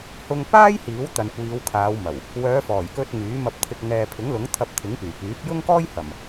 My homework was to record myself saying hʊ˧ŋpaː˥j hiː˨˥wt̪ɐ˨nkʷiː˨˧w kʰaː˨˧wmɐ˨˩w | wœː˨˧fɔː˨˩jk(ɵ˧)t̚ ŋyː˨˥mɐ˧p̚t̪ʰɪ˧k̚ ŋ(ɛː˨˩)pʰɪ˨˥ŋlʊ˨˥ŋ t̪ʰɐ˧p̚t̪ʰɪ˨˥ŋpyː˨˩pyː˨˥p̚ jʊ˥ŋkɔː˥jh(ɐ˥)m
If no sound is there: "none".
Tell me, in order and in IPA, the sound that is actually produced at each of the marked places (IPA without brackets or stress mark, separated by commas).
ɵ˧, ɛː˨, ɐ˨˩